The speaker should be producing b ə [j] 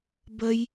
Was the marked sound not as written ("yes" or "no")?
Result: no